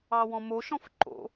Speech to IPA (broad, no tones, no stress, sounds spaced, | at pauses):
ɑ w ɔ̃ m o ʃ ɔ̃ f ǃ o̰